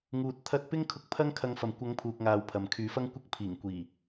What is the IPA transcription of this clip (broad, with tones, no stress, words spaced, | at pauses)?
ŋuː˧t̚t̪ʰɐ˥t̚ pɪ˥ŋkʰʊ˧k̚ pʰɐ˥ŋ kʰɐ˨˧ŋfɐ˨mkʷɐ˨˧ŋ pʰuː˨k̚ŋaː˨w pʰɐ˨mkʰyː˨˥fɐ˥ŋkʷɐ˥k̚ pʰiː˨˩ŋkʷiː˨˩